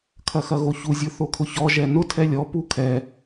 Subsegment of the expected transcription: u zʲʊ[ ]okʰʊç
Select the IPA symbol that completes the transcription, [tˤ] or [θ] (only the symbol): θ